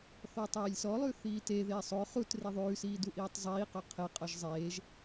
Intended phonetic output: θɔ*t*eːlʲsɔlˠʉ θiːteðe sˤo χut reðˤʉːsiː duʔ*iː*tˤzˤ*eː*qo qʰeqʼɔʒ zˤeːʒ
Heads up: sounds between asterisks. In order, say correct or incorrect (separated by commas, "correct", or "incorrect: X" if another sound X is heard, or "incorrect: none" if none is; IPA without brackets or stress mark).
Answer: incorrect: tˤ, correct, incorrect: iː